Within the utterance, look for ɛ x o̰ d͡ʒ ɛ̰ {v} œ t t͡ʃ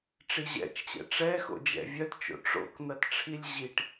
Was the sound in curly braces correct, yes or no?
no